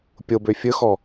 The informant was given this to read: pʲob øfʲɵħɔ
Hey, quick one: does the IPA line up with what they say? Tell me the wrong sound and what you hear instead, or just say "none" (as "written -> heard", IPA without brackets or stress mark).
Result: ħ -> x